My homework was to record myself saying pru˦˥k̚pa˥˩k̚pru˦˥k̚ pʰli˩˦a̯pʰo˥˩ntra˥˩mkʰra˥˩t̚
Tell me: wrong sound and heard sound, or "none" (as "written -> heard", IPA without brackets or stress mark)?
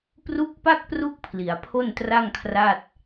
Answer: m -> ŋ